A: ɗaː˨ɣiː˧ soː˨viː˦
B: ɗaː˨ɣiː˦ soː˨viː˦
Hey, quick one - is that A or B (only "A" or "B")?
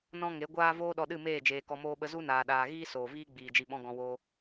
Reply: B